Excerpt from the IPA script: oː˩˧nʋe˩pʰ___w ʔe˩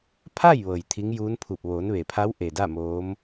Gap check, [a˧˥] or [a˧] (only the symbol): a˧˥